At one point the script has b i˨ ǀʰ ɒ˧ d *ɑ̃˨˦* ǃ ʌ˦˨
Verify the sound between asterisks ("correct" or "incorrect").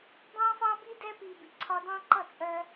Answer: incorrect